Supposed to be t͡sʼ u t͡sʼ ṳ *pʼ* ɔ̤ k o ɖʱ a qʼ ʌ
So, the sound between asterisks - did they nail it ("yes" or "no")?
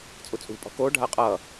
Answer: yes